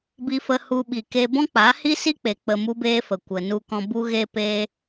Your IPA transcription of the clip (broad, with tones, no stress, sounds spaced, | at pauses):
b i˧ f ə˧ h u˧ ɓ i˨ k e˧ b ɔ̃˦ k͡p a˨˦ h i˦ s i˦ k͡p e˨ k͡p ə˧ m u˦ b eː˦ f ə˨ kʷ ə˨ n u˧ k ɔ̃˧ b u˦ ɣ e˦ p e˦